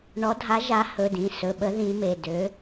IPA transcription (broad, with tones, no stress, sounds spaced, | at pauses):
ɳ ɔ˨˦ dʱ a˨˦ ʒ a˨˦ h ɵ˩˧˩ d ĩ˩˧˩ s ɵ˩˧˩ ɓ ə˨˦ ð ĩ˨˦ m e˩˧˩ d ø˨˦